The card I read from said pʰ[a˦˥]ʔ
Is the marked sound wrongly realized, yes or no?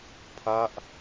no